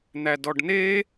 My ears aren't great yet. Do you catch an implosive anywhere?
no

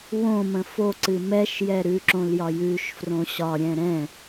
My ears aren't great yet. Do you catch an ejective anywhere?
no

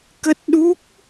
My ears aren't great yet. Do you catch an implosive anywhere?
yes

